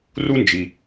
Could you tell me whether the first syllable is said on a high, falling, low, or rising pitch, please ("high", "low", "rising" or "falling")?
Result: high